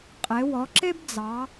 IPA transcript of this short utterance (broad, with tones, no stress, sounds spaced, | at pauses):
qʼ e˩˧ w ɔ˩˧ ǁ e˥ b d͡z ɑ˩˧